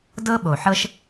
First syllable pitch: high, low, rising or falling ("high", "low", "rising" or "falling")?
high